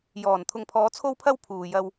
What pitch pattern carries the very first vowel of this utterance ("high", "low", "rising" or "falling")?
low